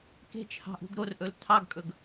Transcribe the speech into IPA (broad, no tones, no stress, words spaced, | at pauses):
ke̤t͡ʃhɑ̤ʔṳɡ ɾorʔɵl tʰɑɡkʼɵɡ